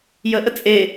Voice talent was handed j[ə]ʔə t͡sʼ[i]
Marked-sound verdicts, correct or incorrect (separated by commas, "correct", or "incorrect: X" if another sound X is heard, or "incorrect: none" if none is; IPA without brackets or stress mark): correct, incorrect: e